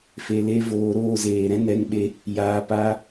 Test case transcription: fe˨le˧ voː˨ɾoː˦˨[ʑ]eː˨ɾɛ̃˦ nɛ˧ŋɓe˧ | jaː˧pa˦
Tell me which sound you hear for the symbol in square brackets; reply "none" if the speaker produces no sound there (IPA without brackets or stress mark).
z